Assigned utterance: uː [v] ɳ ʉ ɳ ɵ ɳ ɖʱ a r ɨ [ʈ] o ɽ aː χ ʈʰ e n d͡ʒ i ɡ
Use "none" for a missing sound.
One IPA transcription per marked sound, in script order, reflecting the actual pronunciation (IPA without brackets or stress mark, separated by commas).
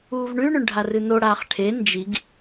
v, n